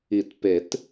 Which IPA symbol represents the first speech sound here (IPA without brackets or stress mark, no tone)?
i